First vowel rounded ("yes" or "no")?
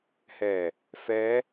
no